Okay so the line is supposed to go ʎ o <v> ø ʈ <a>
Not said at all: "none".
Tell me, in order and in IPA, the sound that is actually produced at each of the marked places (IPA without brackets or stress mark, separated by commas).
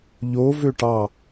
v, ɑ